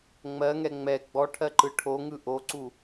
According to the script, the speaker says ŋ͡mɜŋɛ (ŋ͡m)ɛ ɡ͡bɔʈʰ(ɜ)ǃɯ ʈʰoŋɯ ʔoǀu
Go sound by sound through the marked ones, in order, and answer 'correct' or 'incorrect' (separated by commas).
correct, correct